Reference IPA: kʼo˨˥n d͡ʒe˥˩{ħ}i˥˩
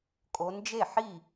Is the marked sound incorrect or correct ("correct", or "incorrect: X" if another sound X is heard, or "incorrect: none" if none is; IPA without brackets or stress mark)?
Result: correct